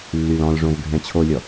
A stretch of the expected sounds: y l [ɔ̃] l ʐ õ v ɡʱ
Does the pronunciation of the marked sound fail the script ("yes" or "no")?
no